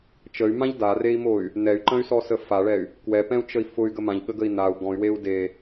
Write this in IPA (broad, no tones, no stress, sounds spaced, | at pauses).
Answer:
t͡ʃ ə y̯ m ã ʎ d a r e i̯ m o y̯ | n ɛ y̯ ǃ ə̃ y̯ s ɔ s ə f a ɭ ɛ y̯ | k w ɛ p ɛ̃ u̯ t͡ʃ ə i̯ f ʊ y̯ ɡ ə m ã ʎ ɠ ə ɡ ə i̯ n a u̯ ɡ ɔ̃ y̯ w e u̯ d e